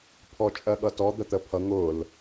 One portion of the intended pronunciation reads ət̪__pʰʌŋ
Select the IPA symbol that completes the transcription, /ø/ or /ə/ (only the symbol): ə